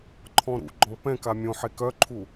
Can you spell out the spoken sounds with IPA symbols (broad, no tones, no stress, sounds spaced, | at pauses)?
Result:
ǃʰ ɔ̃ ɾ ṵ ɡ͡ǃ ɔ̃ p ɛ̃ k a mʲ õ ħ e k œ ǃʰ u